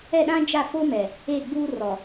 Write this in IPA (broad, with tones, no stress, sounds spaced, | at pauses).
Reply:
ɛ˦˨ ɗ ã˦ d͡ʒ a˦˨ f o˦ m ɛ˨ | e˦˨ ɡ͡b uː˦ r ɔ˨